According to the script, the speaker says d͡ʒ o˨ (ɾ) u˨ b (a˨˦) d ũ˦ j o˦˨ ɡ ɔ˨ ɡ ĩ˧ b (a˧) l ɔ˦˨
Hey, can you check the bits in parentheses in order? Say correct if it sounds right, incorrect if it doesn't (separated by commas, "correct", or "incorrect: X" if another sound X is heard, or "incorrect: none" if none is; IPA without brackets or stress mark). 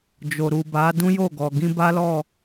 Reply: correct, correct, incorrect: a˦